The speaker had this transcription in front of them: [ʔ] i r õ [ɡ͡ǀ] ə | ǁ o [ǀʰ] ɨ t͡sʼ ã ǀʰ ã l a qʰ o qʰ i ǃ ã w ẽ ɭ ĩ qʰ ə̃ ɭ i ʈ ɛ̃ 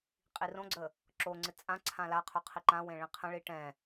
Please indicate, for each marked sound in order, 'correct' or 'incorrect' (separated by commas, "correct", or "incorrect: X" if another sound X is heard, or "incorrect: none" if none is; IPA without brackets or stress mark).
incorrect: qʼ, correct, incorrect: ŋ͡ǀ